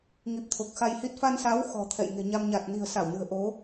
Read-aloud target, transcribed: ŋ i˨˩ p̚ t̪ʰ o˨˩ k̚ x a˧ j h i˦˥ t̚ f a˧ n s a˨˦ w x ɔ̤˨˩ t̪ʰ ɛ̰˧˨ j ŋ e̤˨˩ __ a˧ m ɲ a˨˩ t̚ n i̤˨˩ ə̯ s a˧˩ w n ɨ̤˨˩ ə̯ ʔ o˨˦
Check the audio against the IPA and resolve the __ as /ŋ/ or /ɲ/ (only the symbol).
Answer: ɲ